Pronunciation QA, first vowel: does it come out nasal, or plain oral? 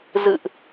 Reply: oral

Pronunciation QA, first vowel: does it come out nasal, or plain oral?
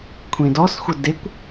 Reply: nasal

